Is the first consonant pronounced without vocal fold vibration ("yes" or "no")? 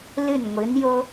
no